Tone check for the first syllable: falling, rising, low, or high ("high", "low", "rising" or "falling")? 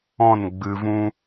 falling